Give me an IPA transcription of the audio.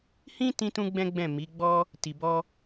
hĩ˦ tĩ˦tũ˦ɡ͡bɛ̃˦ɡ͡bɛ̃˦˨ mi˨˦ɡ͡bɔ˦ | ti˧bɔ˦

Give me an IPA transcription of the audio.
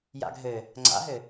ja̰ɡʱɘ | ŋ͡ǀa̰ɦɘ

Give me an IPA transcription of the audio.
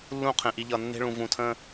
lːũ˦˨qʰẽ˨ ʔi˨ʎʌ˨nːe̤˦ɭũ˨ vũ˨tʰə̃˦

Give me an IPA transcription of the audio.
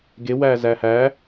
ɡewæ zæhæ

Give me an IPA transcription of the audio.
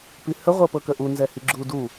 pihə ʁʷɤpɤkəʔu nzɛhiɡ͡ǁu du

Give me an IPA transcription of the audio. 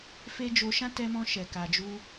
fe˦ d͡ʒo˧ʃã˦ tɛ˧mɔ̃˧ ʃɛ˨ka˨ d͡ʒu˧

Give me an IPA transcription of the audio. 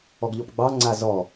ɔɡʎɔpɡ͡bɑ ŋ͡ǀazɔ

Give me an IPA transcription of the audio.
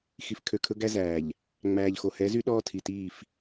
xi˨fkʰø˨kʰɵ˦ ɡæ˦zæː˨ʎ | ŋ͡mæː˨ʎxo˨hɛ˨˦zy˦ ɗɔː˦tʰi˨ tiː˦˨f

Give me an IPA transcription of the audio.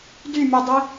dymʲudˤi

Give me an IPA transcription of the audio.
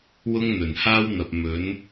wʊ˥ŋn̪ɵ˨˩n haː˥wn̪ɐ˨p̚mɵ˨˥n

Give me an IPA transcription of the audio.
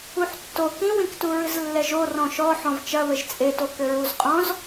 uħtːo kĩwĩktu ɹɨzlːɛʒo rɔ̃ʃɔ ħɔ̃vt͡ʃɐ βɘʒt͡sʼeto kɘɹuzqʼɔ̃z

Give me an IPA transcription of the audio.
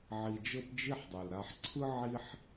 ʕi˨d͡ʒɤ˦pd͡ʒi˦ħdˤe˩l ɾa˨ħǀʰɯ˥ ʕi˥ħ

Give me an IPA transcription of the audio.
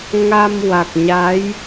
ŋa˧m wa˨˩k̚ɲa˧˥j

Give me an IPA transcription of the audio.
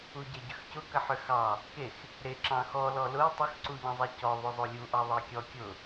uɟeɟʏxcʊ kɐħʏxɑ | kex | ɾe ǁɑ̃xɔ lɔlʊɪ̯ tˤʏxǀuʎɑ̃zˤe cɔðˤʏ zˤolʲuʔɑ ðˤekʲɔ kʲʊ

